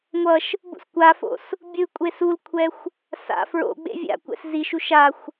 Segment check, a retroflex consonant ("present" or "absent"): absent